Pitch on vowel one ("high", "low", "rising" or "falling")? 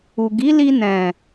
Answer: low